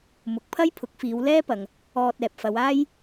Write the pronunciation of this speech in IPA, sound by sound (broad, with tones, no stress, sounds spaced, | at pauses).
m ʊ˨ k̚ pʰ ɐ˥ j pʰ ʊ˨˥ k̚ f iː˨˧ w l ɛː˥ p ɐ˨ ŋ | ɔː˨ t̚ ɛː˨ p̚ f ɐ˨˧ w aː˥ j